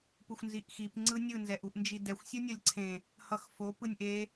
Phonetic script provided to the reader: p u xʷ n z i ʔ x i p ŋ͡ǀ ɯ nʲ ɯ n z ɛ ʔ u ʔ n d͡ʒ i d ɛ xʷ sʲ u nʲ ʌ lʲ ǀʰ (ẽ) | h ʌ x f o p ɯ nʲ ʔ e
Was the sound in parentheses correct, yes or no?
yes